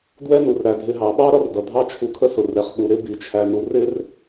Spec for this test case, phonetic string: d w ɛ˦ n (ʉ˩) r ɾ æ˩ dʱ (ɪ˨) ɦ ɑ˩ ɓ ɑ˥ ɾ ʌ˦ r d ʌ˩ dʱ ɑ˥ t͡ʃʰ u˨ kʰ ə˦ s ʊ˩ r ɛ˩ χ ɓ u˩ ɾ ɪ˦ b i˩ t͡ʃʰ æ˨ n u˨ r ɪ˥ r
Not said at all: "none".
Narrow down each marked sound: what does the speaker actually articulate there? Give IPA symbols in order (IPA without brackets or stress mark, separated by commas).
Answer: u˩, ɪ˨